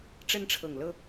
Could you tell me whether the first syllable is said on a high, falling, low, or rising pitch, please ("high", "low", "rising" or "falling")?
high